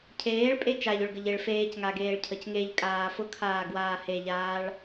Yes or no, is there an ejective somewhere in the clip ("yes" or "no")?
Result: yes